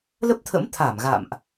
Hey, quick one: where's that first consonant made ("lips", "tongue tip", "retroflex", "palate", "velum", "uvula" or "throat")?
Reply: tongue tip